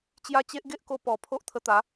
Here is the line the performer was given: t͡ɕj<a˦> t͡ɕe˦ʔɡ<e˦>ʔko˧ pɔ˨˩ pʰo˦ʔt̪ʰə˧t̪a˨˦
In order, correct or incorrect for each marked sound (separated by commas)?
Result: correct, correct